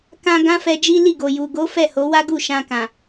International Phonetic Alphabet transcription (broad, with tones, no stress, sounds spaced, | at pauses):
k ã˧ ɡ ã˦ f ɛ˧ d͡ʒ i˦ l i˦˨ ɡ o˨ j u˨ ɡ o˨˦ f ɛ˦˨ h o˨˦ w a˦ ɡ u˦˨ ʃ ã˧ k ã˨